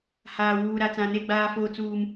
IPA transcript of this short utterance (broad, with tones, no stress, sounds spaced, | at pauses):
h aː˨ w uː˨ ɾ a˨ t͡s ã˨ n e˦˨ ɡ͡b aː˦ f oː˦ t͡s uː˦ m